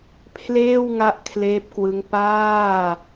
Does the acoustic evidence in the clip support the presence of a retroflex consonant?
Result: no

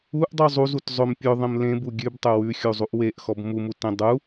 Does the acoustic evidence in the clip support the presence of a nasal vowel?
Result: yes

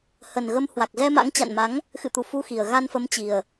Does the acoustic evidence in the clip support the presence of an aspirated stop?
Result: no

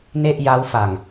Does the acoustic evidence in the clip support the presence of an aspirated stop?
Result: no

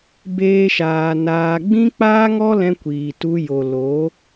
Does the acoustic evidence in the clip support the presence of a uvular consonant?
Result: no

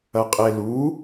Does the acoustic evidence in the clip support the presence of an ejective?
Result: yes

